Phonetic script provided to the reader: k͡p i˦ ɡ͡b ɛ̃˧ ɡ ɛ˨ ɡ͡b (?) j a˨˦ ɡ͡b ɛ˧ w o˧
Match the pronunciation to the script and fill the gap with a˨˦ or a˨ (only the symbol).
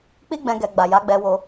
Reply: a˨